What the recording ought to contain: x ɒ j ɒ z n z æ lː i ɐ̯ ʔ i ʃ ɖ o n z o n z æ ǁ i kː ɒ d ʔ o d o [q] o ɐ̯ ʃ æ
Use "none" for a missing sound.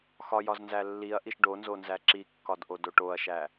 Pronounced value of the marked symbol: ʈ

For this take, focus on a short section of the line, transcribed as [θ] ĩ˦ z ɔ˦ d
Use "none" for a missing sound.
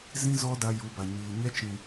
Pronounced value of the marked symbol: z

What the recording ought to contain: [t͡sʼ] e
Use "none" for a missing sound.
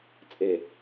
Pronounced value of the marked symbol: t͡sʼ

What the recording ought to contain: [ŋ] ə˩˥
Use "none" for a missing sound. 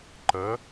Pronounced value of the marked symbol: ǃ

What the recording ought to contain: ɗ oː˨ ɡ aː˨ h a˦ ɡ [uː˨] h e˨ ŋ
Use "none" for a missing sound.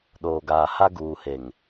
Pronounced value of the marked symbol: uː˨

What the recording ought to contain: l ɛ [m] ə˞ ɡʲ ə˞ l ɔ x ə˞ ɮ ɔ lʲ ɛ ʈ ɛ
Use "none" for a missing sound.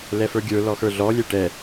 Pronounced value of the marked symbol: f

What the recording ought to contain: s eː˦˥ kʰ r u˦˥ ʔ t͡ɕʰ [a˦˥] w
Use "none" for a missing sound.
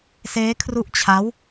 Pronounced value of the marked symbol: a˦˥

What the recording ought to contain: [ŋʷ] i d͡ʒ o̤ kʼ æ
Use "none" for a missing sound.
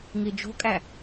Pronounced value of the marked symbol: ŋ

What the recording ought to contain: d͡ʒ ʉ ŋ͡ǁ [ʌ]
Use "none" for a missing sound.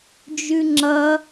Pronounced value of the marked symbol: ʌ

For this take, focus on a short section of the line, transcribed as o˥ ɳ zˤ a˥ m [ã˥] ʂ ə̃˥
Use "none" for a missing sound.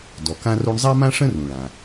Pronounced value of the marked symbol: ã˥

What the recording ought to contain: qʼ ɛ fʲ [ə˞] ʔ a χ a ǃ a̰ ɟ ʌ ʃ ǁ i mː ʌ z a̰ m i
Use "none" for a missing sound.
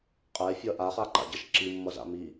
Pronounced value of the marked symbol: ʌ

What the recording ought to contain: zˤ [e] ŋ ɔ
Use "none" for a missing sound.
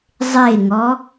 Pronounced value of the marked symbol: e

